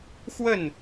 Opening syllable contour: falling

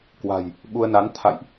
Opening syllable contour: low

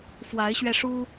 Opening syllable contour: rising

